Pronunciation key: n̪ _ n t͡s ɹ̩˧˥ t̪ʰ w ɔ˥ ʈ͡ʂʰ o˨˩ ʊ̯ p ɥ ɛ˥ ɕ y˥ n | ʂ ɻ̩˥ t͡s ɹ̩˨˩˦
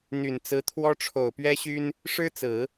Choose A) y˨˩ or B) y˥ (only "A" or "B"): A